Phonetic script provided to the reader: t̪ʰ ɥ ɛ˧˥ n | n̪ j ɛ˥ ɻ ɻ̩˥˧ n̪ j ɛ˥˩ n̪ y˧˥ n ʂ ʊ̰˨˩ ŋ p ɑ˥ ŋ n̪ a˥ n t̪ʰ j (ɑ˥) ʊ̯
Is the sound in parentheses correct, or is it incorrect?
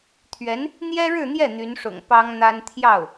incorrect